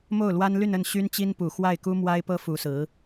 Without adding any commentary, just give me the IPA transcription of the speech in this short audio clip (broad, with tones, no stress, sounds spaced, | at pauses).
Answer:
m o˥˩ ʊ̯ l w a˥ n l y˥˧ n ə˥˩ n ɕ y˥ n t͡ɕ i˥ n p u˨˩ x w a˥˩ ɪ̯ k u˥ m w a˥ ɪ̯ p ɤ˥ f u˧˥ s ɹ̩˧˥